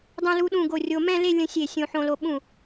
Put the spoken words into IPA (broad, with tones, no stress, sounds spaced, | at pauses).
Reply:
dˤ ɛ̃˧ l u˧ ɗ ũ˧˩ ɡ o˧˩ rʲ o˧ m ɛ̃˥˧ l e˥˧ lʲ ə̃˧ sʲ e˧˩ sʲ õ˧ ħ õ˧ l o˧ ɓ ũ˧˩